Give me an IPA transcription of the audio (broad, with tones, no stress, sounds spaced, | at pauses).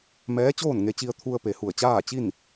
m ɛː˧˥ t͡ɕ oː˥˨ n ŋ e˧ t͡ɕ i˧ ə̯ t̪ʰ u˧ ə̯ p e˩ h u˧˩ ə̯ t͡ɕ aː˥˨ t͡ɕ i˥˨ n